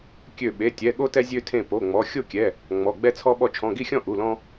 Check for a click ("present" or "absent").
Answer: absent